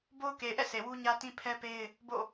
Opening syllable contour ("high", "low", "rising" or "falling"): high